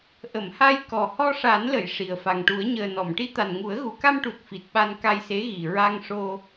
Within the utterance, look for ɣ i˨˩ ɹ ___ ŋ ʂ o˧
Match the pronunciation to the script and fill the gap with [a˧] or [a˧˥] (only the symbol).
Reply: a˧